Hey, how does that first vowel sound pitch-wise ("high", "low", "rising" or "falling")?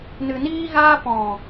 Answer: low